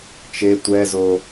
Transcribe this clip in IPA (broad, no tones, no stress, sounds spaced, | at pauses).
t͡ʃ e tʷ ɛ z o